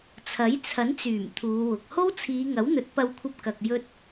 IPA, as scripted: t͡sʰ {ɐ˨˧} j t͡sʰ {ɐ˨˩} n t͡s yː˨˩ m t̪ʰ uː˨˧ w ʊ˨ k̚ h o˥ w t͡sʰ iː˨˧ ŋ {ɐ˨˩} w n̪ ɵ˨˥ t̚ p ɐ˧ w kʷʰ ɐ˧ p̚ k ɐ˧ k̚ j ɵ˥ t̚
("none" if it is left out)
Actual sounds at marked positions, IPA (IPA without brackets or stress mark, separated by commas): ɐ˨˥, ɐ˨˥, ɐ˨˥